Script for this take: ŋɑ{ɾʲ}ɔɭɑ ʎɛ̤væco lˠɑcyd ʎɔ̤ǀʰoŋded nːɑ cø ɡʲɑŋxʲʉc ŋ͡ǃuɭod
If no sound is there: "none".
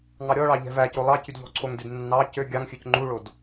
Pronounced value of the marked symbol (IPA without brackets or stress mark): ɾʲ